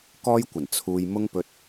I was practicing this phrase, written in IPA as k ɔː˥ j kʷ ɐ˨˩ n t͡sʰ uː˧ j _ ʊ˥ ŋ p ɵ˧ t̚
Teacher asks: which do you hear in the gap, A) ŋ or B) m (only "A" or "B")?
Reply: B